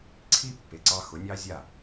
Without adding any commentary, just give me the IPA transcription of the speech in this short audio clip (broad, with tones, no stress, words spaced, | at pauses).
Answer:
ǀʰi˦pːe˨ǀɑ˧ xʊ˨˦nʲɑ˦ zʲa˦˨